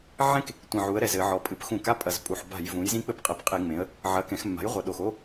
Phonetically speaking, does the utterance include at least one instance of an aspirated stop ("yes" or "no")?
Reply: no